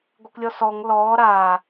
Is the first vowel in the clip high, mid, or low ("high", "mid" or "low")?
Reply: mid